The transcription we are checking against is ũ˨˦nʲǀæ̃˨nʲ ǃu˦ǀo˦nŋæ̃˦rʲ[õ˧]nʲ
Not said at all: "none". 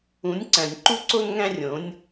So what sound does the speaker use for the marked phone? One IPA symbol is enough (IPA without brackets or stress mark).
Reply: õ˨˦